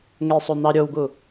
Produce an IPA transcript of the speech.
ŋ e sˤ o n̪ ɑ ɾʲ o w ɡ u

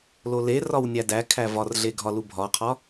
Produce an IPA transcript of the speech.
l o l e r ɒ w nʲ æ d æ kʰ æ v ɒ r ɮ e ɡʱ ɒ l u bʱ ɒ qʰ ɒ

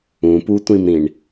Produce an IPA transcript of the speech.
ũ p u tʷ ĩ m ɾ ĩ ɳ

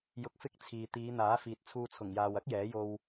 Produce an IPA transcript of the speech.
j ʊ˧ k̚ f ɪ˥ k̚ t͡sʰ iː˨ t̪ iː˨˧ n̪ aː˨˥ f iː˨ t̚ t͡sʰ uː˧ t͡sʰ ʊ˨˩ ŋ j aː˨ w ɐ˥ k̚ j ɛː˨˥ j o˧ w

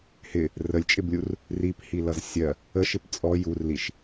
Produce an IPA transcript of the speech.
h ɪ | r ə lʲ t͡ʃʼ ɪ b lʲ u r | r i p h i l ʌ z sʲ ɜ | ə ʃ ɪ p t͡sʼ ɔ j u r l i ʃ

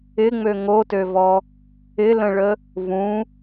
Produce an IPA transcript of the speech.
ɪ ŋ͡m ø ŋ o t ø v ɔ | ɪ l ə̃ ɭ ə | v ũ

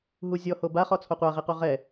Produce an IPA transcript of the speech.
ɦ u zʲ ɔ h o b a χ ɔ t͡sʰ o qʷ a ʁ i q u ʁ ɛ

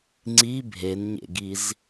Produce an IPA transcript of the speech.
ŋ͡ǀ i bʱ e n ɲ ḛ ɡ i z

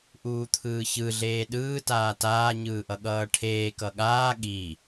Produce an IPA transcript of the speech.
ʔ uː t̪ʰ ɯː ç ɯ ɮ eː ɗ ɯː t aː t aː ɲ ɯː ʔ ʌ ɠ ʌː ʈʰ eː k ʌ ɠ aː ɠ i

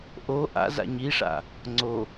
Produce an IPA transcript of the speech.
ʔ o ʔ a̰ z a̰ ɲ i ʂ a̰ | ŋ͡ǀ o

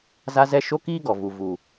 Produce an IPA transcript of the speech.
z a˦ z ɛ˦ ʃ o˦ k iː˦ ɡ ɔ˨ v u˨ v u˨

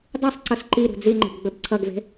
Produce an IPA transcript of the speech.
dˤ i sˤ ǀ ʌ s ǃ i ɾ ṳ d͡z i ŋ͡ǃ ə̤ b ɡ͡b ɵ b ǀʰ ʌ ɡ v e̤

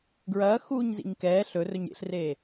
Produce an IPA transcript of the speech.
ɡ ɹ ɐː x uː ɲ z ḭ ɲ k ɛː ɬ ɵ r ɵ ɲ ɾʲ ḛ ɬ r e

